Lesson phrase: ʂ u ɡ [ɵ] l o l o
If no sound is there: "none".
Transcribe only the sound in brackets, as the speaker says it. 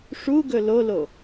ɵ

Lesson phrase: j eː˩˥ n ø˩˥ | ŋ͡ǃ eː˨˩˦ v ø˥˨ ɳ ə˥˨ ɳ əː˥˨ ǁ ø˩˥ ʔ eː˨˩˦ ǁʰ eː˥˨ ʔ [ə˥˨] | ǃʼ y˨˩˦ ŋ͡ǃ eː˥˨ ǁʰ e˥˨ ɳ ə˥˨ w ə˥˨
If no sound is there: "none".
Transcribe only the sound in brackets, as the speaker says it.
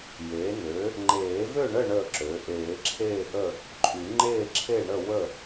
ə˥˨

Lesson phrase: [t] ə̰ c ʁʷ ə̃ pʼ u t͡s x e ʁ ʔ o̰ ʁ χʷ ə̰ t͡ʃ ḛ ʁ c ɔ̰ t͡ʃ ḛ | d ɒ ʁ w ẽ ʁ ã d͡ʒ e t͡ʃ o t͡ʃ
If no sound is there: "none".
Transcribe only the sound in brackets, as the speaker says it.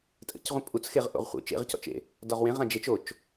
tʼ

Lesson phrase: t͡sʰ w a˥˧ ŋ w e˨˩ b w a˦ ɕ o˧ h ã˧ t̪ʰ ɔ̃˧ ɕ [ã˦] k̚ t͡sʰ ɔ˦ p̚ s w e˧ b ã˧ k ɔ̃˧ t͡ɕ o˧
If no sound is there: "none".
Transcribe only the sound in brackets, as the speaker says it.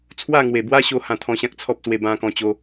ã˦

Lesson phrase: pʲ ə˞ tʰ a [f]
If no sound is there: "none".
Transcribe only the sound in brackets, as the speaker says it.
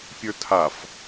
f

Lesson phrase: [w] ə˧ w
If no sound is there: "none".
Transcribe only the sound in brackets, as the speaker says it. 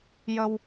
j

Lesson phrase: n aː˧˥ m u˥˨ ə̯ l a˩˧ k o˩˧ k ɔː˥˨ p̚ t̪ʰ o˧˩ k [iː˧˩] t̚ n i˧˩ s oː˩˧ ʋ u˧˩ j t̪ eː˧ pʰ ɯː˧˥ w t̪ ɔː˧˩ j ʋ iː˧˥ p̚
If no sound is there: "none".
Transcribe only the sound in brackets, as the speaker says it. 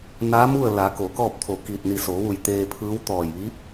iː˧˩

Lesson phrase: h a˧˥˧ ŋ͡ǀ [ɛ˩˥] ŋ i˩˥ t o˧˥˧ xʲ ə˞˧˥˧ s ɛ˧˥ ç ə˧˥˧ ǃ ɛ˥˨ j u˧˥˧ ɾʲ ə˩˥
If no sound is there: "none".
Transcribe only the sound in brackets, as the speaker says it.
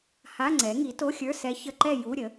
ɛ˩˥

